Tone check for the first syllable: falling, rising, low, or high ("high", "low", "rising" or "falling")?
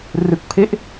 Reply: low